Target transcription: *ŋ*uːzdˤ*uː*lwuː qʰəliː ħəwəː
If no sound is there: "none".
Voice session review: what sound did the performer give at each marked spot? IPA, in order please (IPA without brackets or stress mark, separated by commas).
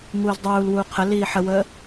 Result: ŋ, uː